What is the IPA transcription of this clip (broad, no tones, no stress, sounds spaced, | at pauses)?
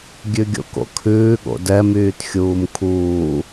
ɡʲ ʉ ɡʲ o̰ k o̰ kʰ ʉː ɠ o̰ d ɛ m yː t xʲ uː m kʰ uː